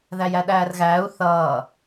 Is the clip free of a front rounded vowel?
yes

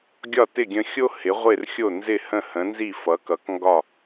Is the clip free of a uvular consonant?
no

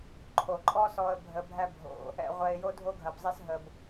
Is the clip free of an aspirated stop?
no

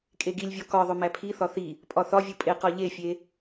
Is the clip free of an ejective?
no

